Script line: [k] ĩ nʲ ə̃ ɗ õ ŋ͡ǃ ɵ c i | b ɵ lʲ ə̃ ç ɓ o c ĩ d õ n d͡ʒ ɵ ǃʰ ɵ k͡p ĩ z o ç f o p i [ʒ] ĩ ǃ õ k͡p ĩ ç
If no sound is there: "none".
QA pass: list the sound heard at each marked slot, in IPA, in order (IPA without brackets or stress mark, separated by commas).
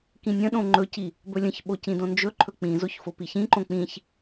k, ç